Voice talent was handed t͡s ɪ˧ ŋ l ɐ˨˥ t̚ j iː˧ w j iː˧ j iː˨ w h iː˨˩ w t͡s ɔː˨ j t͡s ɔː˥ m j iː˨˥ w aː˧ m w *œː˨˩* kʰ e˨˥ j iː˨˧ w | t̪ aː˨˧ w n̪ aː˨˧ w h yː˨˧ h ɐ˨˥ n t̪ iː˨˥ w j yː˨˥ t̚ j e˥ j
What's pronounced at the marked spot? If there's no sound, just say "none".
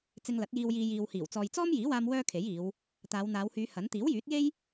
œː˥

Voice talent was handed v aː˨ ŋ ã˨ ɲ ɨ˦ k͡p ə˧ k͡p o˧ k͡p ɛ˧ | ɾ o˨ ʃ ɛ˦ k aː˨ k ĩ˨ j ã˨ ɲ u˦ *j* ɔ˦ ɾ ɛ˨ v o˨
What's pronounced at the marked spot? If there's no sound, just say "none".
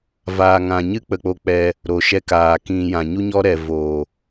ɲ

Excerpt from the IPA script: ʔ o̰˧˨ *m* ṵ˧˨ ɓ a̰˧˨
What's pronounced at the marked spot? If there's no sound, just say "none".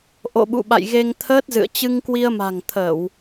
ɓ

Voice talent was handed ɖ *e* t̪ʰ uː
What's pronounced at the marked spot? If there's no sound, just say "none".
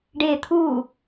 e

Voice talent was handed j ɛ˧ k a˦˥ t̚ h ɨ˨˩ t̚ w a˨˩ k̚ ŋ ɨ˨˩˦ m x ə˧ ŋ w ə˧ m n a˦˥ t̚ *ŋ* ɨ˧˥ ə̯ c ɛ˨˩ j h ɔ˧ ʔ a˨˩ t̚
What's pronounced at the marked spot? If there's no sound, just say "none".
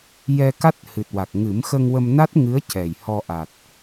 ŋ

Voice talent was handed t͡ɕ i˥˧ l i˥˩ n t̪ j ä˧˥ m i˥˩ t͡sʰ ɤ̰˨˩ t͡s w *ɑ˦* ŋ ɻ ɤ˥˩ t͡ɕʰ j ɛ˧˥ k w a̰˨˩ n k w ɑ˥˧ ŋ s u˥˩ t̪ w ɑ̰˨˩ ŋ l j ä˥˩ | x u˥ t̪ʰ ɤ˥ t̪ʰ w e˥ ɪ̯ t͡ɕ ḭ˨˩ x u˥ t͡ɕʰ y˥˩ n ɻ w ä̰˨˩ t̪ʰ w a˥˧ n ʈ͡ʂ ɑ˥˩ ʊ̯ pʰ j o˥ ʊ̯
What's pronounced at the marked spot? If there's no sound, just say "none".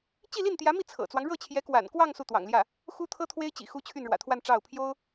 ɑ˦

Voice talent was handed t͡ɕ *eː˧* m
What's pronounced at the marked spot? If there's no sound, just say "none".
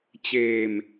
eː˧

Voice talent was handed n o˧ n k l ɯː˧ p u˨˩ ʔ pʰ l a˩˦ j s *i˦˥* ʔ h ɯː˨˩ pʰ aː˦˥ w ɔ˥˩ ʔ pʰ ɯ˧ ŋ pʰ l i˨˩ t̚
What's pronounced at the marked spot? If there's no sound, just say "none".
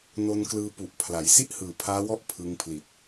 i˥˩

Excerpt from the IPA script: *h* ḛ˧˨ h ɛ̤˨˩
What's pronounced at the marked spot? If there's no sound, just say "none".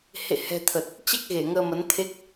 h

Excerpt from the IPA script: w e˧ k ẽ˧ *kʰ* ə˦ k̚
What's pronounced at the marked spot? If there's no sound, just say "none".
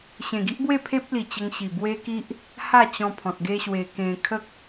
kʰ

